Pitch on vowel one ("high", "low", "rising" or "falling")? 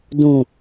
low